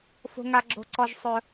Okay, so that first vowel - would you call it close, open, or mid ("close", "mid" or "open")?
mid